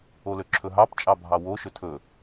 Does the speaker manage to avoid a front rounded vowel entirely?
no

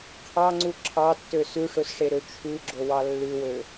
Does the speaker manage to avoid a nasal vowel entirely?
yes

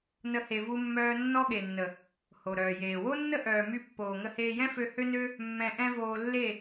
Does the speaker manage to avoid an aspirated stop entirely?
yes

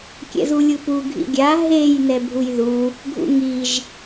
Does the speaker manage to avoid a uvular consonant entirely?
yes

